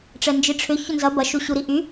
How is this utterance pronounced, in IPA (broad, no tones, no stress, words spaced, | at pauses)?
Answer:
ʈ͡ʂɛnd͡ʒiʈ͡ʂʰʏ çʊnzɐ bɐ ʃuɕuɾiʔy